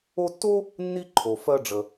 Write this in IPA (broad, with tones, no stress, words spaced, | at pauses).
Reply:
o˦tːo˥ | nːi˥ǃʰo˨ fɜ˦ɖ͡ʐə˨